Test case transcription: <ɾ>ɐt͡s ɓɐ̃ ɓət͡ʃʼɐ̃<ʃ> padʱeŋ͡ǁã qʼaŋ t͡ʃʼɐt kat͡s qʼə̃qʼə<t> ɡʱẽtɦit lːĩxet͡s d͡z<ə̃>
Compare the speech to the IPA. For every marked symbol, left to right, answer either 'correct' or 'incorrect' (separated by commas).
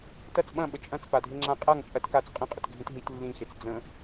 incorrect, incorrect, correct, correct